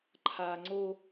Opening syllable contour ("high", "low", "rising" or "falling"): low